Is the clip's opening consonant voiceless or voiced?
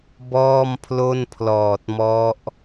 voiced